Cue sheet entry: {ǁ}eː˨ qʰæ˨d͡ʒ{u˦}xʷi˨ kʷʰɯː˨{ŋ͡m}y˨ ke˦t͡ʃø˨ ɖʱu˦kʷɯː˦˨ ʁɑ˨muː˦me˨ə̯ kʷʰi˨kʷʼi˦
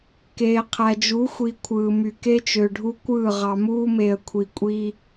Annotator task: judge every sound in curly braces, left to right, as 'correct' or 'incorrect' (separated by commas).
incorrect, incorrect, incorrect